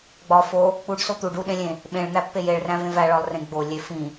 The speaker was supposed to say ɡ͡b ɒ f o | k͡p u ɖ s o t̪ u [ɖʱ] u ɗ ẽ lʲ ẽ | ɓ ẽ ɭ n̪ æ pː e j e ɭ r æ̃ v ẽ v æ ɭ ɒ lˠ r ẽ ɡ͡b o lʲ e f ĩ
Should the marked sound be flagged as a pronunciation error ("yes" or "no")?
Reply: yes